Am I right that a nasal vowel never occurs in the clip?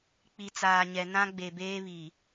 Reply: no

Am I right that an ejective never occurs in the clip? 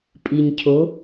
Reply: no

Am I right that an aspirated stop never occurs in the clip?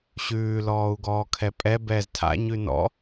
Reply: no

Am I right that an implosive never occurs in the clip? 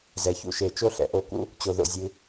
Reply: yes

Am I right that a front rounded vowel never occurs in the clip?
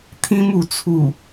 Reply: yes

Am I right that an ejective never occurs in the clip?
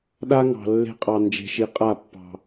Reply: no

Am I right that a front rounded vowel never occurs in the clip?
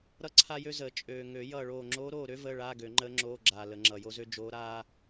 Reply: no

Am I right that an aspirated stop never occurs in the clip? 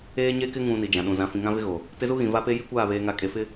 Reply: yes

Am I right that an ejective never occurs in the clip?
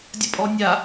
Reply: no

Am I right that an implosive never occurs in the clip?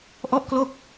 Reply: yes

